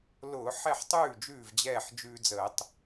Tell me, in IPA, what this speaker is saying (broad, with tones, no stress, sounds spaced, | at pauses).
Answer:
l ʊː˧˩˧ ħ ɛ˥˩ ħ tˤ ʉː˥˩ d͡ʒ ʉː˥˩ v d͡ʑ ɛː˥˩ ħ d͡ʒ ʉː˧ d͡z əː˧˩˧ tˤ